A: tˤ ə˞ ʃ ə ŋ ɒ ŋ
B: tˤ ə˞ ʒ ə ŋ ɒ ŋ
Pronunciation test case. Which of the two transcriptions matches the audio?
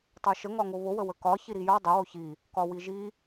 A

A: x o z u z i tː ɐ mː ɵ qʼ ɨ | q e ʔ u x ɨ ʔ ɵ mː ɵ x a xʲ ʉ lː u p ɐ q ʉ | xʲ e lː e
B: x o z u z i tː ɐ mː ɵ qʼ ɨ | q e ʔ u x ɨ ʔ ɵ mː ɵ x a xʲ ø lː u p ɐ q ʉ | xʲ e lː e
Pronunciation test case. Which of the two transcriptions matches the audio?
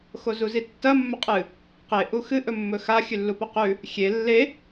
A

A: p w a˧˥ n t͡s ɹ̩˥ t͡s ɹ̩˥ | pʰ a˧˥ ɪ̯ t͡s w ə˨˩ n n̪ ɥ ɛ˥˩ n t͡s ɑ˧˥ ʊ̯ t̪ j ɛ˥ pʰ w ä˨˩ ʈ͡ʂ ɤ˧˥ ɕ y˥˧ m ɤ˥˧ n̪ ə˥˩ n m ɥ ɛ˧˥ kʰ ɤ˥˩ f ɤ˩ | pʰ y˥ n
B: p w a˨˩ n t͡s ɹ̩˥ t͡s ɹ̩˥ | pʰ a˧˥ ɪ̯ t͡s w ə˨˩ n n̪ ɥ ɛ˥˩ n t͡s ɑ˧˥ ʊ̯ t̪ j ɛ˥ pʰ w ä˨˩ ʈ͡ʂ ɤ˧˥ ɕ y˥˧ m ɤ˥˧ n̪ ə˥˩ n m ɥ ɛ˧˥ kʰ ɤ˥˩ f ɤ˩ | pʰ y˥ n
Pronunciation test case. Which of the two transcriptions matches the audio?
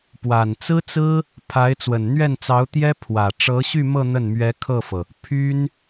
B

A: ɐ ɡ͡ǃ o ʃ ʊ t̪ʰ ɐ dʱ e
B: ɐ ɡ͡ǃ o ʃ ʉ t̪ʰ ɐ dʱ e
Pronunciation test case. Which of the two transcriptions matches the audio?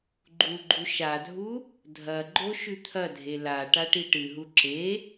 B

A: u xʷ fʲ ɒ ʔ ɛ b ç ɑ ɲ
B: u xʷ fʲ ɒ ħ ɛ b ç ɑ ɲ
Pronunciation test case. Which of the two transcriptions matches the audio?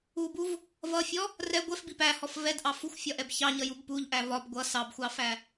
A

